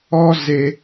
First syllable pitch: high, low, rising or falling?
high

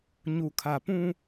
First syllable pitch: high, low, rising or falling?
low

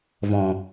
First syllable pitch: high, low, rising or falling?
low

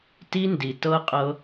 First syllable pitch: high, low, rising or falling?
high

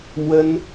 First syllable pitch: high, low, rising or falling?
high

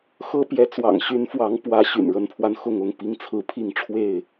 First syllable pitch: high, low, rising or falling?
high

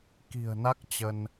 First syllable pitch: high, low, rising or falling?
low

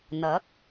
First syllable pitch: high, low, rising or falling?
rising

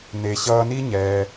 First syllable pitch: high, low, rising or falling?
low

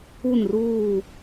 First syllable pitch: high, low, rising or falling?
falling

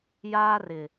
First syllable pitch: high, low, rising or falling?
high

